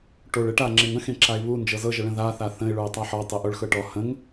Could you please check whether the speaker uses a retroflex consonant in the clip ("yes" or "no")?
yes